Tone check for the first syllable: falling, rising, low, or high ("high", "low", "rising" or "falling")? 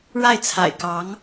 falling